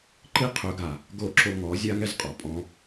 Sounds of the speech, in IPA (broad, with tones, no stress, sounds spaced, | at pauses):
ǃ i˦ qʰ ɵ˨˦ ɡ a˨ | ɡ o˦ ǁ o˦ ŋ ɔ˨˦ zʲ a˦ ŋ ɛ˦ z qʼ ɔ˨ pʼ ɔ̃˧